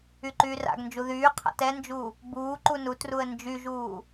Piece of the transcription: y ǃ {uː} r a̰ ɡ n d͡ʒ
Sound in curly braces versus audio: incorrect: yː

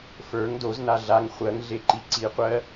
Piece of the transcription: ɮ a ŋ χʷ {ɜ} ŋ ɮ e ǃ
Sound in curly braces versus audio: correct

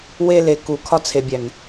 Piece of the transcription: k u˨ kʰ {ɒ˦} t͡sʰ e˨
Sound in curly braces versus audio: correct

